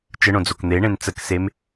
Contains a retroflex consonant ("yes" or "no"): yes